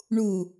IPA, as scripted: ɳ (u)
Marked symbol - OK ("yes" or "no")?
yes